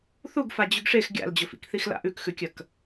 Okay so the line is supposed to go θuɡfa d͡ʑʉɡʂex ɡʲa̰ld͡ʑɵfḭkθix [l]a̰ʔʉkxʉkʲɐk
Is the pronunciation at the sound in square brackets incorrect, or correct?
correct